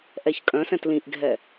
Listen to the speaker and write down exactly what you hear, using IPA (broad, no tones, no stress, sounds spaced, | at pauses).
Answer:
ʔ ɛ ç kʼ œ̃ s ɛ̃ t l ĩ ʔ ɡʱ ɛ